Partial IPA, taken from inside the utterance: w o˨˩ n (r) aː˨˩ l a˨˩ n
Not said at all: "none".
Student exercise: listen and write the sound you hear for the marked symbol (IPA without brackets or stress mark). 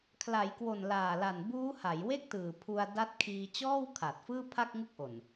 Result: l